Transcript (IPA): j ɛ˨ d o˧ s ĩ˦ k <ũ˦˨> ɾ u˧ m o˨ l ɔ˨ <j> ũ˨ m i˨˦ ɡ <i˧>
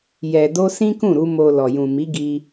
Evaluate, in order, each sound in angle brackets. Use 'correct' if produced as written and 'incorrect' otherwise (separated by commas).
correct, correct, correct